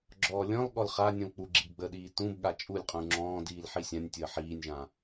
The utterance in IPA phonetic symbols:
ɡ͡ǁ ɔː lʲ ɔ̃ l ɠ ɔ l χ a nʲ ũ l k͡p u ɡ͡ǁ i b ɡ͡b ə ɗ iː t ũ b ɠ a t͡ʃʼ u lʲ qʼ ũ ŋ͡ǁ ɔ̃ː d iː l ħ i sʲ ã nʲ tʲ əː ħ iː nʲ ʒ ã

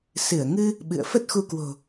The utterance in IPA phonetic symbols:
s ɨ˧˩ ə̯ ŋ ɨ˧ | ɓ ɨ̰˧˨ ə̯ f ə˦˥ t̚ x u˧ k w o̤˨˩

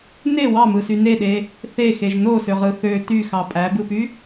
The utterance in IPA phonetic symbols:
n e w ɑ m ɯ s y n e ɗ e | θ e x e ʒ n o s ø ʁ ɯ θ ø t y x ɑ pʼ æ b ɯ p y

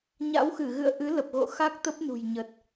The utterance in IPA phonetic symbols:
ɲ a̰˧˥ w x ɨ˧˩ ɣ ɨ̰˧˨ ə̯ ʔ ɨ˨˦ l ə˨˩ p̚ ɣ o̰˧˨ x a˦˥ k̚ t̪ ə˦˥ p̚ n ṳ˨˩ j ɲ ə˨˩ t̚

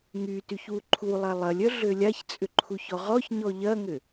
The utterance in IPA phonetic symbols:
ŋ y t y ç w u ǃʰ u lˠ a lˠ ɐ lʲ œ ɮ ø lʲ a ç t͡sʼ ʏ ǃʰ u ç ɔ ʁ ɔ ç ɲ ɔ ʎ ɐ ŋ ʏ

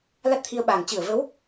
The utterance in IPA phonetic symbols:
l a˦˥ t̚ t̪ʰ i˧ ə̯ ɓ aː˨˩ ŋ t͡ɕ ɨ˧˩ ə̯ v ə˨˦ w

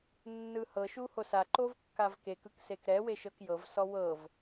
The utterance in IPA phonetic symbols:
nː ɯ h ɤ ʃ u h o s a ǃ o v kː a v k e k ɯ k s e k ɾ ɛ w e ʃ ɤ k j ɤ v s ɔ w ɤ v

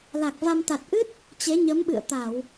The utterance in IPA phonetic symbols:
l a˨˩ k̚ v a˧ m t̪ a˨˩ t̚ ʔ ɨ˦˥ t̚ | t͡ɕ e˨˦ ɲ ə˨˦ m ɓ ɨ̰˧˨ ə̯ t̪ a˧˩˨ w

